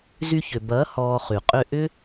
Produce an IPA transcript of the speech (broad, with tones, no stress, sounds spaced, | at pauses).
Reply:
z y˧ ç ʏ˨ b ɐː˨˦ h ɔː˧ χ y˨ qʼ ʏ˧ ʔ ʏ˦